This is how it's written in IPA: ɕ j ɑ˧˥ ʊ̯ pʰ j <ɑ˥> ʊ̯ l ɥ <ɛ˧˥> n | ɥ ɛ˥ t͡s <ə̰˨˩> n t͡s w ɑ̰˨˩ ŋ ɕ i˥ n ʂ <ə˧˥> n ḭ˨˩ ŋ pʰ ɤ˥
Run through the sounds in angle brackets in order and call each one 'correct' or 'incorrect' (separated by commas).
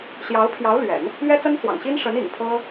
incorrect, incorrect, incorrect, correct